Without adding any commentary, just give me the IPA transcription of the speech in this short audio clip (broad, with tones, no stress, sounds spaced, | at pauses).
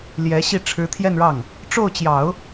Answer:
l j ɛ˧˥ ɕ i˥˩ ʈ͡ʂʰ ɻ̩˧˥ t̪ʰ j ɛ˥˧ n ɻ ɑ˥˩ ŋ | ʈ͡ʂ o˥˩ ʊ̯ t͡ɕ j ɑ˨˩˦ ʊ̯